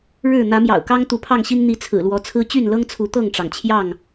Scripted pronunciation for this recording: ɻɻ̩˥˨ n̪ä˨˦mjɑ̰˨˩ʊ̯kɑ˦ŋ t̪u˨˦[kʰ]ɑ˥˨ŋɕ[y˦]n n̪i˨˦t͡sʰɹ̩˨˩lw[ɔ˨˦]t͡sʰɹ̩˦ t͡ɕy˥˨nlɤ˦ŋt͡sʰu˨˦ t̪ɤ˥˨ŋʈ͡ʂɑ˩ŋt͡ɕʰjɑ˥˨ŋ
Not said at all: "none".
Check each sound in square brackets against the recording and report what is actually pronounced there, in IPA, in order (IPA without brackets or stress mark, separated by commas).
pʰ, i˦, ɔ˨˦